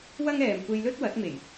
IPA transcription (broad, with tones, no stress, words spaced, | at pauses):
wɐ˥ŋɛː˨m kʷe˧jlɵ˥t̚ wɐ˨˥t̚me˨˩j